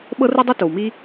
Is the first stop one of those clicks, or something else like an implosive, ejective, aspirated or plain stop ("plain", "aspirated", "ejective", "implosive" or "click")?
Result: implosive